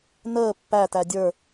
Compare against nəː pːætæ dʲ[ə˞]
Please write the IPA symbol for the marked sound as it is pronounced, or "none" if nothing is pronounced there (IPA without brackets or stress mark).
ə˞